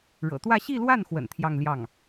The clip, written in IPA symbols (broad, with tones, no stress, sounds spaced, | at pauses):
ɻ ɤ̰˨˩ t̪ w ä˥˧ ɕ i˥˧ l w a˥˩ n x w ə̰˨˩ n t̪ʰ j ɑ˥˧ ŋ l j ɑ˥˩ ŋ